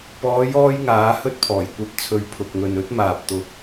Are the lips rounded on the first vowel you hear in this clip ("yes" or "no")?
yes